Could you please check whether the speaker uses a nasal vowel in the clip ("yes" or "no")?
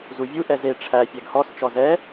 no